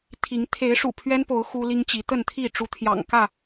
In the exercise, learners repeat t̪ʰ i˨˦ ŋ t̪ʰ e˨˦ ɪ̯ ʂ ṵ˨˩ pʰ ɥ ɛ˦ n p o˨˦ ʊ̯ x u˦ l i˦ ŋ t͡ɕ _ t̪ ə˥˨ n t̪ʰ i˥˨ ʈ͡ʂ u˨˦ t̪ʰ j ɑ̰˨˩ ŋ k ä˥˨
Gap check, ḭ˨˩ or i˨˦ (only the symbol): i˨˦